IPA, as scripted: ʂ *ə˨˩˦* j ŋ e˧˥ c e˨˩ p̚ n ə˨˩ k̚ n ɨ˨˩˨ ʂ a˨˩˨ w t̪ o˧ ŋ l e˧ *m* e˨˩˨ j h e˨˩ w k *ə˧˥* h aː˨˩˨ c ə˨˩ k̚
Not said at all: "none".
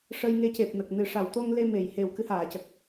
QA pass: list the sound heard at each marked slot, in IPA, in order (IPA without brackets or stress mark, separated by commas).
ə˧, m, ɨ˧˥